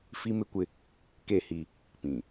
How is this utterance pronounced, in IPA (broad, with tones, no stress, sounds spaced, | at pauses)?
f i˦ m ɪ˦ kʷ ɪ˦ | k e˦˨ h i˦ | p ĩ˨